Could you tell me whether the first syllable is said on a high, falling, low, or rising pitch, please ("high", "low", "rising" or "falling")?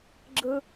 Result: low